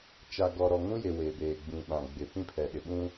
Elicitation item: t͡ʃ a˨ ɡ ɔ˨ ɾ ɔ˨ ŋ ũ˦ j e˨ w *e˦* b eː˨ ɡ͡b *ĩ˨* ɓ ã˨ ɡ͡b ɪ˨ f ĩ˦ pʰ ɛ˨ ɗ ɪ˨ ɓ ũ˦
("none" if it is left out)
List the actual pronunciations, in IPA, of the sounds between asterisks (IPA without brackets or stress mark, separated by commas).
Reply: e˨, ĩ˨